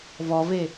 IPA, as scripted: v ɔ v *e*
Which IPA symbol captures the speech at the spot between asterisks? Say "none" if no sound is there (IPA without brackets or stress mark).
e